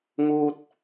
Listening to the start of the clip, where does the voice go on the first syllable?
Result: high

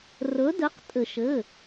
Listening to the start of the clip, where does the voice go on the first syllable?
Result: rising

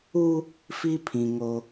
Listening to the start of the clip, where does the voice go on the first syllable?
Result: high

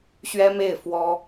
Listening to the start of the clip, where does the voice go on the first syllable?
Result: high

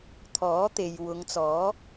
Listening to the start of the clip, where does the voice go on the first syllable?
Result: rising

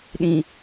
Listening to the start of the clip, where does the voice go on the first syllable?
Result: low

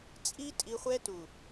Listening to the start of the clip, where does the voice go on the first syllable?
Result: high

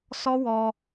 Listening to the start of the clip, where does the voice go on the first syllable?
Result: high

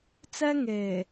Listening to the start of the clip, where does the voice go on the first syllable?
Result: high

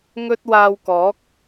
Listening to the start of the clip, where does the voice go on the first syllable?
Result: high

